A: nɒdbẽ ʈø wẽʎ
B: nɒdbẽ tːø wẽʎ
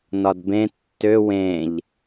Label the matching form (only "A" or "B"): B